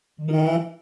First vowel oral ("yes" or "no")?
no